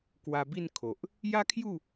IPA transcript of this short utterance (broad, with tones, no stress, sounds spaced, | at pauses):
k w a˧ b i˥˧ n kʰ o˨ ʔ | j a˦ kʰ j u˥˧